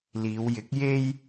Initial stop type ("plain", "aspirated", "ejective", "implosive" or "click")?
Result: plain